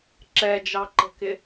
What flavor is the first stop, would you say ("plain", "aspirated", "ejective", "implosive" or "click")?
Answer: click